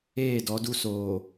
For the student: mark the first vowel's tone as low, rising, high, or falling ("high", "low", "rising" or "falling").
falling